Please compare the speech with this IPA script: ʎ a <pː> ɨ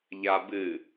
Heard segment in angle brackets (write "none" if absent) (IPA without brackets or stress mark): b